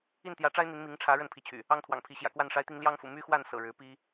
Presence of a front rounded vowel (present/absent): present